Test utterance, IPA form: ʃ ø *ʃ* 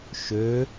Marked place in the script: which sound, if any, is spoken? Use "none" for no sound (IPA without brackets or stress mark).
none